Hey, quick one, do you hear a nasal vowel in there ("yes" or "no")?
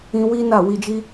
yes